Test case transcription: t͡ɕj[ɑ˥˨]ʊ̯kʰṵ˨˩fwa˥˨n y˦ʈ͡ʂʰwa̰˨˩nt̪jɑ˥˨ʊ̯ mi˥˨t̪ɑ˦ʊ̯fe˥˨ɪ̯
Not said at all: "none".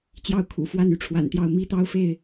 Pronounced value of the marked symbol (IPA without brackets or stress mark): ɑ˥˨